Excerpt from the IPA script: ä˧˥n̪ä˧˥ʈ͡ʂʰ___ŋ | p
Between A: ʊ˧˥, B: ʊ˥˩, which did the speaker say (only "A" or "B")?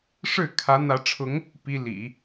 A